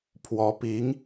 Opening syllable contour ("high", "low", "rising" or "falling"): rising